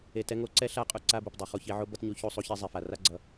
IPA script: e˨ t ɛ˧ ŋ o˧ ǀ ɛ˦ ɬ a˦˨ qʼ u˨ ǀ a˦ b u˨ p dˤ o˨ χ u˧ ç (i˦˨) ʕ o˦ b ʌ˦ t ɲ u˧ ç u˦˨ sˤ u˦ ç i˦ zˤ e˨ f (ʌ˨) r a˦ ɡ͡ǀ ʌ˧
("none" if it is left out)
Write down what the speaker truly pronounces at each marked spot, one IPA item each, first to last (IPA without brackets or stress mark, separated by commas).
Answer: i˧, a˨